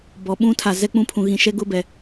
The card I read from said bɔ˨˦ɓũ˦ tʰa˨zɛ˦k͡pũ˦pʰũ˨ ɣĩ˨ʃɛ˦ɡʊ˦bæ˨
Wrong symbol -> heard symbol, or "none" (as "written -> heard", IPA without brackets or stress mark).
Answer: æ˨ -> ɛ˨